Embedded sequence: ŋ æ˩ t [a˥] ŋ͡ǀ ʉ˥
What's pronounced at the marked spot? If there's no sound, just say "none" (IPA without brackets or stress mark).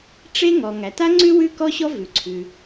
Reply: a˥